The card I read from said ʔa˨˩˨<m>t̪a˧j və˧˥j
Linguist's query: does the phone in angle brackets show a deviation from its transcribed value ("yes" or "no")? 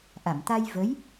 no